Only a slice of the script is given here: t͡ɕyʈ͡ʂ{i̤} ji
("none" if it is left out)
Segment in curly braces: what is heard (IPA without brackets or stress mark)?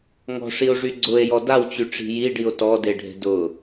i̤